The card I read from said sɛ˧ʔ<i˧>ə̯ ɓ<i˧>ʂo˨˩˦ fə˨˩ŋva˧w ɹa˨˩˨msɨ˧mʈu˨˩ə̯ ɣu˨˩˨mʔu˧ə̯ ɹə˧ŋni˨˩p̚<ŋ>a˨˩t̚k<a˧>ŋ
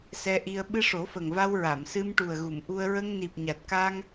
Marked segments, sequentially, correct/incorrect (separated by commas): correct, incorrect, incorrect, correct